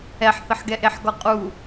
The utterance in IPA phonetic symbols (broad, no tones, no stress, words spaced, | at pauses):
ɛħθəħɡɛ ʔeħɡɔqʼu